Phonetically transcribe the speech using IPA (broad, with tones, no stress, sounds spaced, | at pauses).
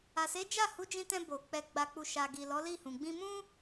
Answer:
a˨ s e˨˦ d͡ʒ a˦˨ h u˨˦ d͡ʒ ĩ˧ t ɛ̃˧ b o˨ k͡p ɛ˧ ɡ͡b a˧ k͡p u˧ ʃ a˨ ɡ i˨ l ɔ˨˦ l i˦˨ h ũ˨ ɡ͡b ĩ˧ m ũ˦